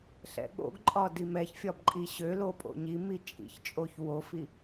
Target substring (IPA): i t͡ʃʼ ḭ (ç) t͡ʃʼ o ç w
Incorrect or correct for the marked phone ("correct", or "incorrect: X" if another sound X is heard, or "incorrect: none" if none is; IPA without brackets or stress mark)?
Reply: correct